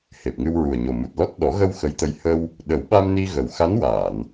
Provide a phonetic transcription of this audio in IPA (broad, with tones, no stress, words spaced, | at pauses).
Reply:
he˨˩p̚ŋɨ˧w ɹu˨˩ə̯ɲo˨˩mu˨˩t̚lɔ˦˥t̚ ɗɔ˨˩˦ɣə˧w xə˧˥jt̪ə˧j hə˧w | ɗə˨˩˦wɓa˧m ni˧ɣə˨˩wxa˧˥nwaː˨˩˨n